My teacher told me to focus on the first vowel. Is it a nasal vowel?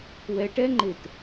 no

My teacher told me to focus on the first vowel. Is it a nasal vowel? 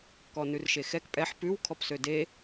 no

